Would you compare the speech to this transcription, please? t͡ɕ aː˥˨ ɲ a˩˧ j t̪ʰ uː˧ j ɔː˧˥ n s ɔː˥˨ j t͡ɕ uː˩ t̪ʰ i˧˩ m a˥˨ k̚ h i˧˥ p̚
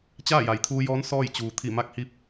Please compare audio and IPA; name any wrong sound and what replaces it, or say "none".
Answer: ɲ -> j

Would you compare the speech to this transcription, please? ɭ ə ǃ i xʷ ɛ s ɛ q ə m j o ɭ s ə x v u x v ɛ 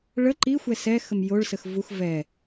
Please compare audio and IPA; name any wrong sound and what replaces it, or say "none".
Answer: q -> x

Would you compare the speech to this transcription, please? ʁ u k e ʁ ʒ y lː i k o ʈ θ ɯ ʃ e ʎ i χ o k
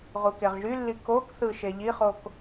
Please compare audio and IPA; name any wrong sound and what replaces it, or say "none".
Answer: ʈ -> k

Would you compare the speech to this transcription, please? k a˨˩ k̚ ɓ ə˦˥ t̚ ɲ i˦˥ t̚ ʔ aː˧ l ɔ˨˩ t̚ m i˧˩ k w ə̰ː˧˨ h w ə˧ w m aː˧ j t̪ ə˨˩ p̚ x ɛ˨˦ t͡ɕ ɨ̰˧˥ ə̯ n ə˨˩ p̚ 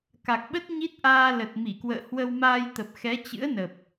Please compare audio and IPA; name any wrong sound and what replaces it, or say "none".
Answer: ɔ˨˩ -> ə˨˩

